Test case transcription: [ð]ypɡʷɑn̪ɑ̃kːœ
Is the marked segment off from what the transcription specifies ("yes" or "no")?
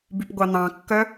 yes